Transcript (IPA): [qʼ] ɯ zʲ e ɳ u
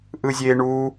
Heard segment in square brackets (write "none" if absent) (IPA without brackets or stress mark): ʔ